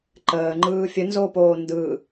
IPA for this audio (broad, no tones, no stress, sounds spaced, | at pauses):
ǃ əː ŋ͡ǃ ɯː fʲ ə n z oː p oː n d ɯ